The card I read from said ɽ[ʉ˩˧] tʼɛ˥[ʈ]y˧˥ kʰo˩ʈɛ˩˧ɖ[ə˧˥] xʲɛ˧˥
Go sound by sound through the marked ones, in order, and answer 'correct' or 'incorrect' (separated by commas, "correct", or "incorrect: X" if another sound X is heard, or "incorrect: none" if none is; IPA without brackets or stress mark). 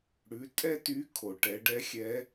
correct, incorrect: t, incorrect: ɛ˧˥